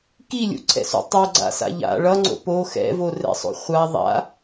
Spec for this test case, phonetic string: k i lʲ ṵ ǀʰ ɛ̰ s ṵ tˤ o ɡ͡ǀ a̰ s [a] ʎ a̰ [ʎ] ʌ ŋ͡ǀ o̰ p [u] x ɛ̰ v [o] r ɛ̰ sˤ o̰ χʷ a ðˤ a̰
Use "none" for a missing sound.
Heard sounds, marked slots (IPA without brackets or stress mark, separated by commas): a̰, ɭ, o, o